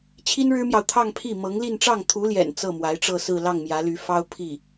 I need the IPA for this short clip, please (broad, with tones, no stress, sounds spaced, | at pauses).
t͡ɕʰ i˥ n ɻ ɻ̩˥ m j ɑ˨ ʊ̯ t̪ʰ ɑ˥˧ ŋ pʰ i˥˩ m ɤ˧˥ ŋ l i˥˧ n ʈ͡ʂ ɑ˥˩ ŋ t̪ʰ u˧˥ l j ɛ̰˨˩ n t͡s ɤ˥˩ m w a˧˥ ɪ̯ ʈ͡ʂ ɤ˥˧ s ɹ̩˥˧ l ɑ˥˩ ŋ m j ä˧˥ l y˧˥ f ɑ˥ ʊ̯ pʰ i˥˩